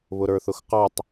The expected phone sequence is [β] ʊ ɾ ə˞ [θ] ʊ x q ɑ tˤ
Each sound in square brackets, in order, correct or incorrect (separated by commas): correct, correct